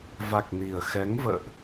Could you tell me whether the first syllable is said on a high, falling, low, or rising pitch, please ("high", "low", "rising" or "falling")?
low